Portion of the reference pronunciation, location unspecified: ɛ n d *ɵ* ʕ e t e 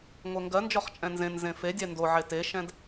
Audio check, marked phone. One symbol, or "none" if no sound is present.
o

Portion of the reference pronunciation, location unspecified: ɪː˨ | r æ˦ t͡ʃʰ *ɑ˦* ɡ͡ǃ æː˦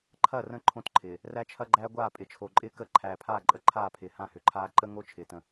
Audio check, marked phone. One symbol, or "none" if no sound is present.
ɐ˦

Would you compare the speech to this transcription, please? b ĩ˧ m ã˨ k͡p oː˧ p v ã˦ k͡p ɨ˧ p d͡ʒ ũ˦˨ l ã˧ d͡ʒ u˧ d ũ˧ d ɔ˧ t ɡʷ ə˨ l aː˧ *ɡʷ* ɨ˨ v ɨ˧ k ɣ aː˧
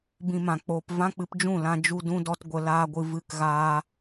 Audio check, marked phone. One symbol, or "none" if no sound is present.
ɡʷ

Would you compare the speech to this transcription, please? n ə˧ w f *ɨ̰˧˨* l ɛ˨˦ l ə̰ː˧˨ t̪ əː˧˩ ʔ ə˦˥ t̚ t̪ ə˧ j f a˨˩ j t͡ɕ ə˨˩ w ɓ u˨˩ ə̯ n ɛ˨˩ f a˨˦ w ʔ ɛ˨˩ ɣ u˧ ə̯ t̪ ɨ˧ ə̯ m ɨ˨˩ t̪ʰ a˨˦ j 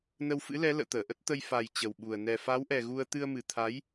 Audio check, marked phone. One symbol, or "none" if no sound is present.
ɨ̰˧˥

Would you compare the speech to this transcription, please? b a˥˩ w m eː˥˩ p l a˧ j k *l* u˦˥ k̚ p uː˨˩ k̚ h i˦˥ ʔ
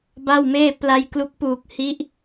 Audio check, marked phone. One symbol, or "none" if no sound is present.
l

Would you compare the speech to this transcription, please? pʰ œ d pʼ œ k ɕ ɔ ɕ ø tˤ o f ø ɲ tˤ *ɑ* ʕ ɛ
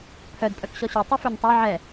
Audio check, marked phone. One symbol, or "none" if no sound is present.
ɑ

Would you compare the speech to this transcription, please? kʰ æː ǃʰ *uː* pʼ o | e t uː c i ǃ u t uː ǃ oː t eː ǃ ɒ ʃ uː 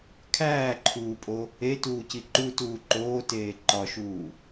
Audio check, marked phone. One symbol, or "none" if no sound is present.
uː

